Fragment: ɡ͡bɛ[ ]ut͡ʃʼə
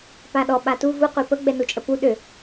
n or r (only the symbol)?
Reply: n